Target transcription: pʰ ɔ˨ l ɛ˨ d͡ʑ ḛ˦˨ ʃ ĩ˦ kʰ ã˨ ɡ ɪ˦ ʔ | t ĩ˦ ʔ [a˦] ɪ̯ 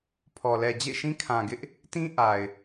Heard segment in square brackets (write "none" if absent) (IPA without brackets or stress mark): a˨